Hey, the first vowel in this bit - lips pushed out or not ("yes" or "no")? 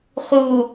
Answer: yes